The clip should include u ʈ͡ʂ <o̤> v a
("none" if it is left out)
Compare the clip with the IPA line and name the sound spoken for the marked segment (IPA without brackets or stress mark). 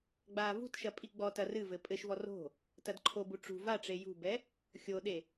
ṳ